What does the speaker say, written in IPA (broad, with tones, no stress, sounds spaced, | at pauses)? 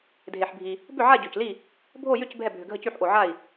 dʱ e˩ ħ bʱ i˩ | b ʏ˥˩ ʕ a˥˩ ɟ ø˩ c l i˥˩ | bʱ o˥˩ j ʏ˥˩ c bʱ ɛ˥˩ bʱ ʏ˩ ɡʱ ə˥˩ c y˥˩ ħ ʔ o˩ ʕ a˥˩ i̯